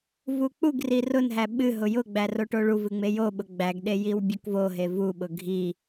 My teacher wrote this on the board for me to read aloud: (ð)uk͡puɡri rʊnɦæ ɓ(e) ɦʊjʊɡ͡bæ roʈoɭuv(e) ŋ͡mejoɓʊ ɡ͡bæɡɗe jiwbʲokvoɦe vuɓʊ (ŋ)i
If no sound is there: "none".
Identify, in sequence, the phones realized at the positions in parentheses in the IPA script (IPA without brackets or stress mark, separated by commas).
v, ɨ, ɨ, ɡʱ